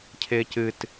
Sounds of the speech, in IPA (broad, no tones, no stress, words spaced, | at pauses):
cʰɪːcɨt